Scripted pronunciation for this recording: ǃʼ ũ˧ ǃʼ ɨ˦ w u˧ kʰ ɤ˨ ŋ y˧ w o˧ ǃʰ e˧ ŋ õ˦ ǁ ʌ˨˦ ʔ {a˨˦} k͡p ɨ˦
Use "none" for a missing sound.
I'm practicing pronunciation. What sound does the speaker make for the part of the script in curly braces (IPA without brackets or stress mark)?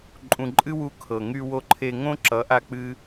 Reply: a˦